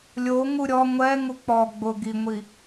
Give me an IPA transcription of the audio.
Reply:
lʲ o ŋ u ɾʲ ɔ ŋʷ ɛ ŋ u k͡p ɔ ɡ͡b ʊ ɡ i ŋʷ i

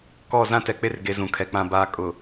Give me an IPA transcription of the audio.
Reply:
k ɔ˦˨ z ã˦ t ɛ˨ k͡p e˦ r ɡ e˨ z ũ˨ kʰ ɛ˨ k͡p ã˨ b aː˨ kʼ ʊ˨

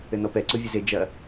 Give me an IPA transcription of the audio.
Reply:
ɘ n ɔ p ɛ ǀ o vʲ ɘ z e d͡ʒ ɐ

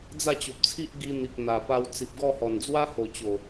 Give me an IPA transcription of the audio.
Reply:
d͡z a˥˧ t͡ɕ o˨ p̚ t͡sʰ i˦ ʔ ɡ i˧ n̪ i˨ k̚ n̪ a˨˩ p a˧ w t͡s i˨ p̚ ɡ ɔ˥˧ h ɔ˨˩ n d͡z w a˦ h o˨˩ t͡ɕ o˨˩

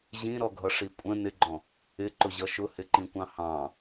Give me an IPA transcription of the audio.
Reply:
ʑ ĩ ɾ ɔ ɡʱ ʌ ʂ i kʷʼ ə̃ n ɪ ɡ͡ǃ ɔ̃ | ɪ ǃ ʊ ʑ ʌ ʃ ʊ h ɪ ǃ ĩ kʷ ɑ̃ h ɑ̃

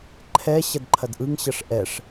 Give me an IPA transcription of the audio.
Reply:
ǃʰ ɛ ɕ ɐ d ǃʰ ɐ d ʔ ɯ ŋ ɕ ɐ ʂ ʔ ɛ ʂ

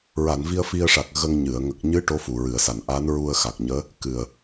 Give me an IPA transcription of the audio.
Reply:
ɹ a˨˩˨ n v i˧ ə̯ f i˧ ə̯ ʂ a˨˩ k̚ ɣ ə˧ ŋ ɲ ɨ˨˩˨ ə̯ ŋ ə˨˩ k̚ ɲ ɨ˧˥ ʈ o˧˥ f u˨˩ ɹ ɨ˨˩˨ ə̯ s a˨˩˨ n ʔ a˧˥ n ɹ u˧ ə̯ x a˨˩ k̚ ɲ əː˧˥ | k ɨ˨˩ ə̯

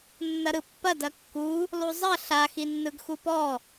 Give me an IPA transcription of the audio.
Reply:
nː ɐ ɾ ɯ pː ɐ d ɐ kː u | lˠ u zˤ ɐ ɬ a x i nː ɯ ɡ x u p ɔ

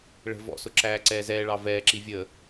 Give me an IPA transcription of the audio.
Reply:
ɭ ə̤ v ɔ̰ s ʊ ǁ æː ǀ ɛː z ɛː ɭ ɑ v ɛː ǁ i vʲ ə

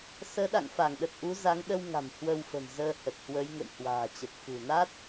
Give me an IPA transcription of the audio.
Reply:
s əː˨˦ ɗ a̰˧˨ ŋ f a˧˩ ŋ ɗ ə˨˩ t̚ ʔ u˨˦ z a˨˦ ŋ ɗ ə˧ w ŋ a̤˨˩ m h w ə˧ w f ə̤˨˩ m z əː˧ h ə˨˩ t̚ h w ə˨˦ j ŋ ə̰˧˨ j h w a̤ː˨˩ t͡ɕ ə˨˩ p̚ f ṳ˨˩ n a˦˥ t̚

